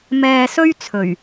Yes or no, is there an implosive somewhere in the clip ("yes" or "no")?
no